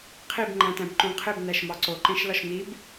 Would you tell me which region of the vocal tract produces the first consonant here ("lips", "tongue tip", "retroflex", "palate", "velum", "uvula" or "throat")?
uvula